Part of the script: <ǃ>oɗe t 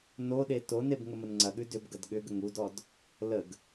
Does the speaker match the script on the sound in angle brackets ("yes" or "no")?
no